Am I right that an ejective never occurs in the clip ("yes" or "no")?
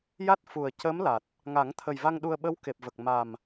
yes